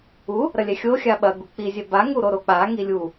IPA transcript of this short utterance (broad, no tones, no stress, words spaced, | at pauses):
u | ɾɐlʲɛxʲo xʲaɓɐ ɡuk͡pi zʲɛba ŋuɾoɾok͡pa ŋilʲu